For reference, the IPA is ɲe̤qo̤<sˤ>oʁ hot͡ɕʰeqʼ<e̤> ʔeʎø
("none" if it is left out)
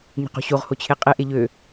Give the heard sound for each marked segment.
ɕ, e

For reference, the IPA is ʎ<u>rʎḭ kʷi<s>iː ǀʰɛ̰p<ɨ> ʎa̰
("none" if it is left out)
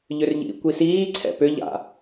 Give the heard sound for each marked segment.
ʏ, s, ʏ

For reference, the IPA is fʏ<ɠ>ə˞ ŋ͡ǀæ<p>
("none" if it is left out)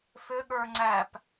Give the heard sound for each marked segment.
ɠ, p

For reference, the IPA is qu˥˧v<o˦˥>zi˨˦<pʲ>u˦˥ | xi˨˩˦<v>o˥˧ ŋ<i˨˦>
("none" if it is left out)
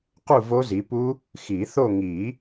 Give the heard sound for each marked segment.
o˦˥, p, θ, i˨˩˦

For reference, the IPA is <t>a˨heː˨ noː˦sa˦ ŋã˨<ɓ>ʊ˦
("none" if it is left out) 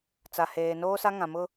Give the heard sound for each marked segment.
t͡s, m

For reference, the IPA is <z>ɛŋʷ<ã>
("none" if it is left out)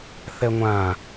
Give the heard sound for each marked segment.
θ, ã

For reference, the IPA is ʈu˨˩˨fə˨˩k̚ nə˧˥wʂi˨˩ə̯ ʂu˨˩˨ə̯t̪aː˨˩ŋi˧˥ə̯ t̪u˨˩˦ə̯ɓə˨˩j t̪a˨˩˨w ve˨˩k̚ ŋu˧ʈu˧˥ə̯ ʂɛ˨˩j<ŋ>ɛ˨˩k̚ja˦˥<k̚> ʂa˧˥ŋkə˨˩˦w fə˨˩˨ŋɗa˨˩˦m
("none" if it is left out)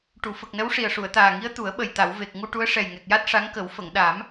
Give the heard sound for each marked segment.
ŋ, t̚

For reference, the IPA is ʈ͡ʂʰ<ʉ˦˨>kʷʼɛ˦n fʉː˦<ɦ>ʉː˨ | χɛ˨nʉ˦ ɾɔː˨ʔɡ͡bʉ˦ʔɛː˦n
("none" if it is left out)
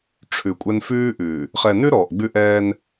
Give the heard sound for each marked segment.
ʉ˨, ʔ

